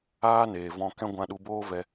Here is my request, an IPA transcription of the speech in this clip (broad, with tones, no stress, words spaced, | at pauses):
aː˦neː˨vɔ̃˧kɛ̃˦ ɡʷã˧ɗu˧boː˦vɛ˧